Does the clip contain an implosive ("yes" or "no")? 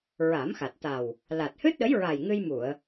yes